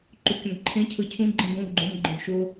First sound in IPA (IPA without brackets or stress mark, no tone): ǃ